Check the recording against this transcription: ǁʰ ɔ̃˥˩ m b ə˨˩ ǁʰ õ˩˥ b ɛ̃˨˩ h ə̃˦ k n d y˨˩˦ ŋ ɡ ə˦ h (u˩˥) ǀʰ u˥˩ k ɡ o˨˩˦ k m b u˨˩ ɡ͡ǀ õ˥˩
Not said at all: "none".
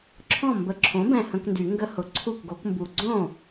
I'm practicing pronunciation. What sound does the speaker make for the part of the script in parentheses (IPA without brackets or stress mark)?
ʊ˩˥